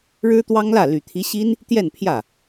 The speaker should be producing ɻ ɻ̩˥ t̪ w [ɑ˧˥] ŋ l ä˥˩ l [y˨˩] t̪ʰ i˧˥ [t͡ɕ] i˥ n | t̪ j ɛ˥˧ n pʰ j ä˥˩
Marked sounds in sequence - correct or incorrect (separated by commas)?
incorrect, correct, incorrect